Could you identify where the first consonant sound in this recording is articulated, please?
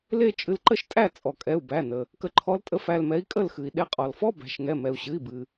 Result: alveolar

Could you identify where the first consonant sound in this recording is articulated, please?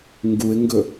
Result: velar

